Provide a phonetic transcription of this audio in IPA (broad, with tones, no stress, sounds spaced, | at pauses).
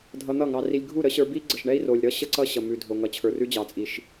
dʱ ʌ˧ n̪ ʌ˦˨ ŋ ɑ˧ r i˧ lʲ ɡʱ u˦˨ ɾ ə˦ ɕ ə˞˧ b i˦ ɡ͡ǀ ə˨ ʃ ɳ ɛ˦ i̯ r o˨ lʲ ɾ ʌ˦ ɕ ə˦ ǀ ʌ˦ ɕ ʌ˨ m ʉ˨ dʱ o˨ ŋ ʌ˨ t͡ɕʰ ə˞˨ r ʉ˦ d͡ʑ ɑ˨ t͡sʼ i˨ ʃ